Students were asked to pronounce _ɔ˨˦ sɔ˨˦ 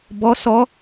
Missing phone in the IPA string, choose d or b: b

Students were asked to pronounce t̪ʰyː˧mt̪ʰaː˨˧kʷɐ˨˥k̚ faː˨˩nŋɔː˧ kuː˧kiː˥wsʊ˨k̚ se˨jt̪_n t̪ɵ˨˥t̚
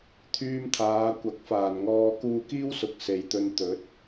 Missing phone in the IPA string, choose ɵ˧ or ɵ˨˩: ɵ˧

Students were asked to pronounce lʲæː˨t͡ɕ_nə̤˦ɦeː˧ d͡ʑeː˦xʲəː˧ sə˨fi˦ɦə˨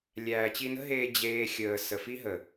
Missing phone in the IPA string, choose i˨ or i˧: i˧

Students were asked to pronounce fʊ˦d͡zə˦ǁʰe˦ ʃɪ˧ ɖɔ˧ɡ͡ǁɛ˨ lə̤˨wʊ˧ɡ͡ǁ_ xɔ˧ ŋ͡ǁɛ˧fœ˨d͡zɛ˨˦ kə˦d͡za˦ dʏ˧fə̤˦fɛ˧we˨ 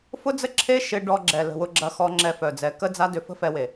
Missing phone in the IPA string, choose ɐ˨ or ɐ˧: ɐ˧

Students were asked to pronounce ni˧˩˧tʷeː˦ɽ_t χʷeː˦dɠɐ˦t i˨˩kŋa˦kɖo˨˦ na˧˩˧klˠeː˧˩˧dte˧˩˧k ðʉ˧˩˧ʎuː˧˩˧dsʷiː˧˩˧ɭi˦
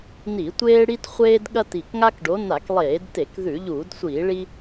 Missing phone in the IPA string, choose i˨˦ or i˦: i˦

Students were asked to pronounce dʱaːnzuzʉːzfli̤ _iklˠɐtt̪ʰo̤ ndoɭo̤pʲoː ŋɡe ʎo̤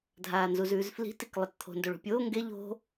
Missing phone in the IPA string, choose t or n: t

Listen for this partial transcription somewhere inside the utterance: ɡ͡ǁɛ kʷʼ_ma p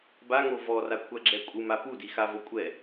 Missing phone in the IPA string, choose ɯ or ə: ɯ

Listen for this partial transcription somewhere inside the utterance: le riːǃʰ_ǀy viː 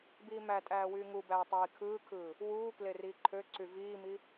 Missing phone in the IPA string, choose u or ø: ø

